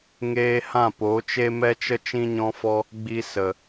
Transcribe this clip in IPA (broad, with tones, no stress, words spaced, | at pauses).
ŋeː˧ hã˦˨po˨˦t͡ʃe˦ mɛ˦t͡ʃə˦ t͡ʃĩ˦ɲɔ̃˦fɔ˦ | ɡ͡bi˧sə˨